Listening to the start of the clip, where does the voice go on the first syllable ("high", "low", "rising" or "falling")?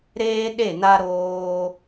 high